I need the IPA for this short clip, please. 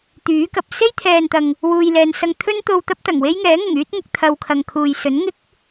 t̪ yː˨˥ k ɐ˨ p̚ s e˥ j t̪ʰ ɛː˨ n t̪ ɐ˨ ŋ | w uː˨ j l ɛː˨ n s ɐ˧ ŋ t̪ʰ ɵ˥ n t̪ o˧ w t̪ ɐ˥ p̚ t̪ ɐ˨˩ ŋ w e˥ j ŋ ɛː˨˥ ŋ ʊ˨˩ ŋ yː˥ t̚ ŋ ʊ˨˥ k̚ t̪ʰ ɐ˧ w kʰ ɐ˨ ŋ kʰ uː˨ j s ɵ˨˥ n ŋ ɪ˥ k̚

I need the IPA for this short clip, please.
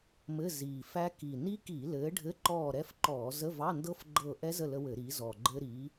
m ɘ˧˥˧ z iː˨˩ f æ˦˥ k i˨˩ n i˦˥ k i˧˩˧ l ɘː˨˥ ɖʱ ɘ˧˥˧ ǃ ɔː˦˨ ɾ ɛ˦˥ f ǃ ɔː˧˩˧ z ə˧˥˧ v ɑ˧˥˧ n d ɤ˦˥ f ɡ͡ǃ ɤ˦˨ ʔ ɛ˦˥ z ə˦˨ l ə˦˥ w ɘ˧˩˧ ɾ iː˨˥ z ɔ˨˩ ɡ͡ǃ ɘ˦˥ ɾ iː˨˥

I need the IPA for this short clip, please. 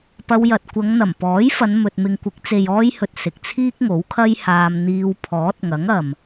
p ɐ˧ w j ɐ˨ t̚ kʷ ɐ˨˧ ŋ n̪ ɐ˨˩ m p ɔː˨˥ j f ɐ˨˧ n m ɵ˨ t̚ m ɪ˨ ŋ kʷ ɪ˨˥ k̚ t͡s e˨ j ɔː˧ j h ɵ˨ t̚ s ɪ˨ k̚ t͡sʰ iː˥ k̚ ŋ o˨˥ w kʰ ɐ˥ j h aː˧ m n̪ iː˧ w pʰ ɔː˨˥ t̚ ŋ ɐ˨˥ ŋ ɐ˨ m

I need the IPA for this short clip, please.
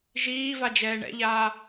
ʒ iː v a d͡ʒ ɛː ɳ ɛ̰ ʎ aː

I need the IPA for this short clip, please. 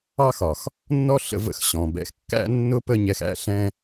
ɑ˦ x ɒ˨ x | nː ɔ˦ ɬ ə̰˧ v ə̰˧ x ɕ ɔ̃˨ b ɛ̰˧ x kː æ̰˦ nː ʊ˦ p ə˧ ɲ ɛ˨ x æ̰˦˨ ɬ ɛ̃˧

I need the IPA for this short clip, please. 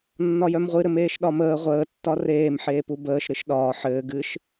nː ɒ j œ m ʁʷ ɨ ɾ ɘ m eː ʃ ɗ ɒ m əː ʁʷ əː tː ɒ r eː m ħ eː p u b əː ʃ ɾ ɨ ʃ ɗ ɒː ħ ɘː ɡ ɨ ʃ

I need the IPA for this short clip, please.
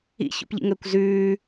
ḭ ç o̰ p ʎ ḭ ŋ əː kʷ z ʉː

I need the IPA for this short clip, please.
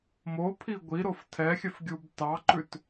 m o pʰ i ɡʷ i ɾ o f tʰ ɛ xʲ œ f ɡʲ u b t ɑ ǃ ʉ t

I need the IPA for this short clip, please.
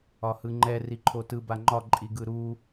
ɒ h ɯ ŋ͡ǃ ɛ r i ǃʰ o t ɯ b a ŋ͡ǃ ɒ ǃʼ i ɡ ɯ ɾ u

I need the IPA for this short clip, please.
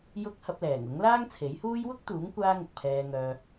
j ʊ˥ k̚ h ɐ˧ p̚ l ɛː˨˩ ŋ ʊ˨˥ ŋ l aː˥ ŋ t͡sʰ e˨˥ j h uː˥ j w ʊ˥ k̚ t̪ uː˨˥ ŋ kʷ aː˥ ŋ ʊ˨ k̚ pʰ ɛː˧ ŋ œː˧

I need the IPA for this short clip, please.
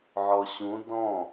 ʕ ɔ ɕ ũ d ɔ̃

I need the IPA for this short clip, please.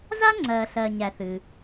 z a˥ ŋ͡ǀ ɜː˩ ɬ ɜː˩ ɲ æ˩ θ ɨ˩

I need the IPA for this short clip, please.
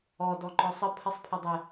ɔ d ɔ ŋ͡ǃ ɔ sˤ ə pʰ ə sˤ pʰ ɪ dˤ ɪ

